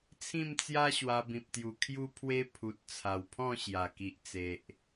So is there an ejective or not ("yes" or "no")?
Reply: no